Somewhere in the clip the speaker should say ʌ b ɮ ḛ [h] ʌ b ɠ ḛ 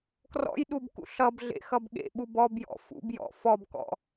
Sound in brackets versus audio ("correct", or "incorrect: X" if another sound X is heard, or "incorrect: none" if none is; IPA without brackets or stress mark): incorrect: x